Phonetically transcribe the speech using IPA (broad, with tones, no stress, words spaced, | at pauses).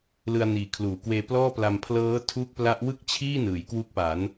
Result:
lɯ˧a̯niː˨˩kʰluː˩˦kweː˧ plɔː˥˩pla˧m pʰlɤː˦˥tʰu˦˥k̚pla˦˥ʔ wɯ˥˩k̚t͡ɕʰiː˥˩ nɯː˩˦jkwu˦˥k̚pa˩˦n